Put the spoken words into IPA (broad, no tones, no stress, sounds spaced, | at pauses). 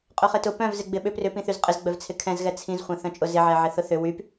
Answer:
qʼ œ χ ɪ t ʊ p œ̃ v z ɪ ɡ͡b ɪ ɓ ʏ p r ʏ p ĩ θ y z qʼ ɪ z ɡ͡b œ v t͡sʰ ɪ kʰ ɛ̃ z ɣ ɛ t͡sʰ ĩ z χʷ ɛ̃ θ œ̃ t͡ʃʼ ʊ z ɪ ʕ ɛ ʕ ɪ θ ʊ θ ʏ w y p